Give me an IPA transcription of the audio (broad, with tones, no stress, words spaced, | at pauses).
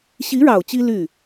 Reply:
ɕi˧˥ɻɑ˨˩ʊ̯ t͡ɕi˥ ly˥˩